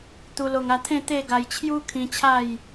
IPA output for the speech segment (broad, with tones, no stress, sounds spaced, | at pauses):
t̪ u˧ l o˧ ŋ a˧ t̪ʰ ẽ˥˧ t̪ e˥˧ ɡ a˧ j t͡ɕʰ j u˦ kʰ ĩ˧ t͡ɕʰ a˥˧ j